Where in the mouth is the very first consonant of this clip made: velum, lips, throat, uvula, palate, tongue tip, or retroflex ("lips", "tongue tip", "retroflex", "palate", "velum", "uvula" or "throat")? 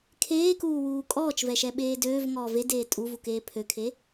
velum